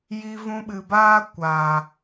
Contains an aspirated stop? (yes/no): no